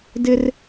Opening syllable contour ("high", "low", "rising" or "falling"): high